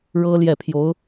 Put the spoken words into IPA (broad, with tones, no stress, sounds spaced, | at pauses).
ɻ ɤ˥ l j ɛ˥˩ pʰ j o˧˥ ʊ̯